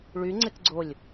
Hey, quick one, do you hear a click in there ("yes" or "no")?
yes